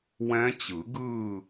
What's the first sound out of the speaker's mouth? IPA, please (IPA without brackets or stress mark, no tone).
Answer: w